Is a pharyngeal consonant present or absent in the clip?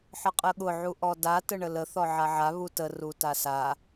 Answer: present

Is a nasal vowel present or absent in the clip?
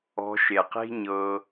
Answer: absent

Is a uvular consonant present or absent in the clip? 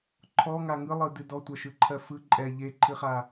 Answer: present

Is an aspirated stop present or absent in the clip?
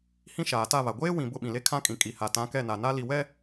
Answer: present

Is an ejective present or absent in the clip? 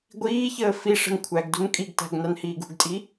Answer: present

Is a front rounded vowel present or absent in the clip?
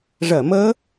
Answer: absent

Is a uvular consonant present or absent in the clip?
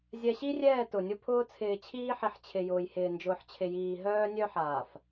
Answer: absent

